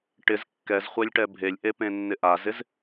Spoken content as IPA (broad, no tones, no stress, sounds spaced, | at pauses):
ʈ ɪ z kː ɛ z χʷ ɛ lʲ ʈ ɛ bʱ e lʲ ʔ e p ẽ nː ɪ ʔ a z ɪ z